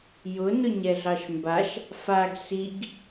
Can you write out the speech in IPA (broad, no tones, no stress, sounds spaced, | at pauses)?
j ʊ n ʊ ɲ ɛ ɮ ɑ ʃ m b a ʃ | f a ɡ s i ɡ